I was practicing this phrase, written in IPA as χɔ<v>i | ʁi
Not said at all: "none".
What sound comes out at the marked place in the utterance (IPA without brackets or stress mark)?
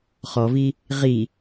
v